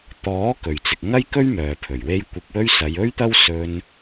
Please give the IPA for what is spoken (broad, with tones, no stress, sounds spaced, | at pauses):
t̪ ɔː˨˥ k ɵ˨ ɥ t͡s ɪ˧ k̚ ŋ ɐ˥ j k ɵ˥ ɥ m œː˨ pʰ ɵ˨˩ ɥ w e˥ j kʷ ɪ˧ k̚ w ɵ˥ ɥ s ɐ˨˧ j ɵ˥ ɥ t̪ ɐ˥ w s ɵ˧ n